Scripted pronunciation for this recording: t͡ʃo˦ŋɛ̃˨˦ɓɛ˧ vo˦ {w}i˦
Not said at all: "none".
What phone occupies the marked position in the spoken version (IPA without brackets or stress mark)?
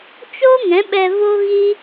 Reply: ɣ